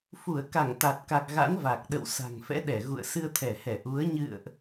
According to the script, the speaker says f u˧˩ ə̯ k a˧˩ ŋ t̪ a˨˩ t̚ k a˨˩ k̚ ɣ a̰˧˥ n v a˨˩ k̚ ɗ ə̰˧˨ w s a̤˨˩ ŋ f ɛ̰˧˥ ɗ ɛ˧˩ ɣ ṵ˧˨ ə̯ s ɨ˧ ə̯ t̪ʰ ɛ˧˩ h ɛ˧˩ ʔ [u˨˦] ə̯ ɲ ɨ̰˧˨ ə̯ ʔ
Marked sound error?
no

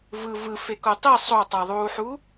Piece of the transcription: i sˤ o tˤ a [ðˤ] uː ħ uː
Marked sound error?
no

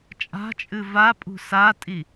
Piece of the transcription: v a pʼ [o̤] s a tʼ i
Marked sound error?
yes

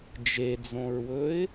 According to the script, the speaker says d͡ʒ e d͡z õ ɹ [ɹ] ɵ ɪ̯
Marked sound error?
yes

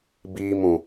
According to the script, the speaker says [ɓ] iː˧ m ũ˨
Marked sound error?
yes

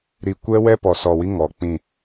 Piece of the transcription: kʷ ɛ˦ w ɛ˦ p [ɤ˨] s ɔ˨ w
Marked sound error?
yes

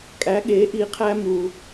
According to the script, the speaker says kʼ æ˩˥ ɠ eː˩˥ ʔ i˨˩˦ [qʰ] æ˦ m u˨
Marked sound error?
no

